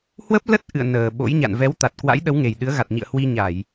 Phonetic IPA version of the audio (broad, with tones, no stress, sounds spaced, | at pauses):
h w ə˦˥ p̚ l ə˦˥ t̚ ʔ ɨ̰˧˨ ə̯ n əː˨˩ ɓ o̰˧˥ j ɲ a̰˧˨ n v ɛ˨˦ w t̪ a˨˩ t̚ k w a̰˧˥ j ɗ ə˨˦ w ŋ e˨˩ j ɗ ɨ˨˦ ə̯ ɣ a˨˩ t̚ ɲ ḭ˧˨ ə̯ h w i˧ ɲ a˧˩˨ j